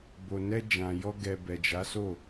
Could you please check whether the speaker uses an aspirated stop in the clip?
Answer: no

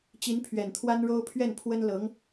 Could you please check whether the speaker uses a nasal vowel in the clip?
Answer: no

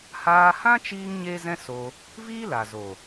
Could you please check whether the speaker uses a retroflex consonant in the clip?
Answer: no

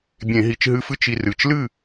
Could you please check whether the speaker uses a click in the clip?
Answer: no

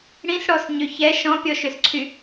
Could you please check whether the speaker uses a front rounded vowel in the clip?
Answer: yes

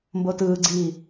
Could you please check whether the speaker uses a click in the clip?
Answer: yes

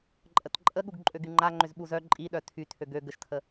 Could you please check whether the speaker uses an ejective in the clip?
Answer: yes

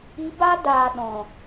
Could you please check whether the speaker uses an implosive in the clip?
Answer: yes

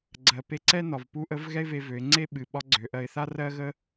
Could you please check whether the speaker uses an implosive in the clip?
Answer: yes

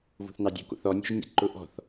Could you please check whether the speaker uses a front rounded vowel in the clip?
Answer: no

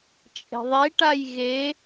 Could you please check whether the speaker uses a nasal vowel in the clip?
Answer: no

